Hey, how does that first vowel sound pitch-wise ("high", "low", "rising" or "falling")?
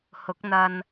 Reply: rising